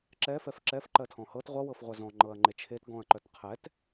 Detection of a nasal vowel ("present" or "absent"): present